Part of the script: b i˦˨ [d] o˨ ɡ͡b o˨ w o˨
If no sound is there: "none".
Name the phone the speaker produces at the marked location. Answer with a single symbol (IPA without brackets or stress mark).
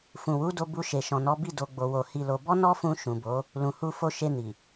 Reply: d